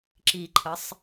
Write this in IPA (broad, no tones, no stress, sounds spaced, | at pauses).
ǁ i ǃʰ ə sˤ